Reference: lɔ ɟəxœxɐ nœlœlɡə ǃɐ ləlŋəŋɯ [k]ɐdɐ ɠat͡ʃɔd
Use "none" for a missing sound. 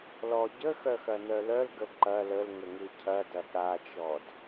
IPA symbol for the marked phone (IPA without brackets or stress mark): cʰ